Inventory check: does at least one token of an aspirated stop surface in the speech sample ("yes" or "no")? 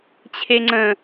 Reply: yes